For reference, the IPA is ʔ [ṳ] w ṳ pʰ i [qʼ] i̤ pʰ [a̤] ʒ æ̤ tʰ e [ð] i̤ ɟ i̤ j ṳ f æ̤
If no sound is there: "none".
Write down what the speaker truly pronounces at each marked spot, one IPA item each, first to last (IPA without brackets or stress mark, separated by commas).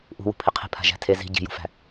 ṳ, qʰ, a̤, z